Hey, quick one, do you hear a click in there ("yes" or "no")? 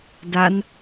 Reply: no